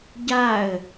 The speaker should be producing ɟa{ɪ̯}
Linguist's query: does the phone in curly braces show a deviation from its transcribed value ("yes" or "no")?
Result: yes